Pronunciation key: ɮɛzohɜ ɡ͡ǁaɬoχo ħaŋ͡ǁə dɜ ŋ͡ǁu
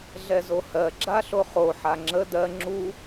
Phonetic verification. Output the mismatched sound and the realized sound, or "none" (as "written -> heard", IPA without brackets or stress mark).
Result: none